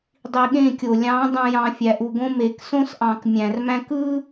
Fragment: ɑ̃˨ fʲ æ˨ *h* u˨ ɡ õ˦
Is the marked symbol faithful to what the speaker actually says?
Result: no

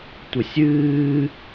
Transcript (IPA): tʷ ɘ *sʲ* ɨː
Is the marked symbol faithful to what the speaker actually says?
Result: yes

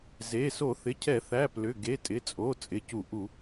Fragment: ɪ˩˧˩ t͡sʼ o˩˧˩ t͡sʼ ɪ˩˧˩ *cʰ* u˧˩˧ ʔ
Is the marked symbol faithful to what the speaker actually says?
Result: no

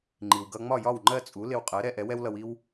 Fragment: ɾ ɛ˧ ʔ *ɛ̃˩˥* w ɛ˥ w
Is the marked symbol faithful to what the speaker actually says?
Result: no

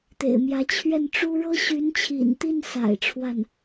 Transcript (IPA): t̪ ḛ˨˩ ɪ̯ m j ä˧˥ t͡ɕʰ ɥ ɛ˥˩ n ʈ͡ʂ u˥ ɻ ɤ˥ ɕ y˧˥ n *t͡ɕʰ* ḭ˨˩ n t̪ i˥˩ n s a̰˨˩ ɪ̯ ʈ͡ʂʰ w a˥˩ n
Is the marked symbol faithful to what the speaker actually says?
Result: yes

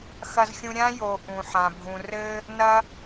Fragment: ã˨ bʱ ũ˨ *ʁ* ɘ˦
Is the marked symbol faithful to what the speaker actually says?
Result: no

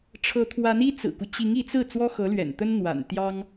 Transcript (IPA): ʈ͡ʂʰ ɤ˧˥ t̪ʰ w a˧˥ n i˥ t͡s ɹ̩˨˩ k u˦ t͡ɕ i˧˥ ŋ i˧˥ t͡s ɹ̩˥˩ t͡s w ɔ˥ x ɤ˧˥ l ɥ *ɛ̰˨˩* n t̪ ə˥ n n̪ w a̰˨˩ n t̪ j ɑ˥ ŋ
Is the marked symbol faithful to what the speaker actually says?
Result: yes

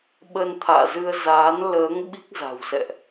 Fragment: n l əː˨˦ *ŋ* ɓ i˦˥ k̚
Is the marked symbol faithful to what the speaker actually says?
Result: yes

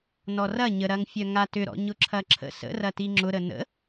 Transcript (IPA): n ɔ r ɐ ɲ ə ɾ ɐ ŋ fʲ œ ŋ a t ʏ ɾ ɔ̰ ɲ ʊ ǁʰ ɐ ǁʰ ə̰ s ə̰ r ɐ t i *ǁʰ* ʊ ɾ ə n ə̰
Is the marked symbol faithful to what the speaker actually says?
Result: no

